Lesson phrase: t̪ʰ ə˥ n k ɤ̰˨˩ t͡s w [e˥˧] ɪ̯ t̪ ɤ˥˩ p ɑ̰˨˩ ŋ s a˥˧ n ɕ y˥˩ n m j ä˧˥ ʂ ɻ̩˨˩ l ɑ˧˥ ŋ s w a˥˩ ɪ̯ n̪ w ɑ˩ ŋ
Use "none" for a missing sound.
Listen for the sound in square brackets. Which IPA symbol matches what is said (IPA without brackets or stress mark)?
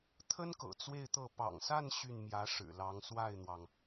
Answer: e˥˧